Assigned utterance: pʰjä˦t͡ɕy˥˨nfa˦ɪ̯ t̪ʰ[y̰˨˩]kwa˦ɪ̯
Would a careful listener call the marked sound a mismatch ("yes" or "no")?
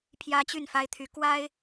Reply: yes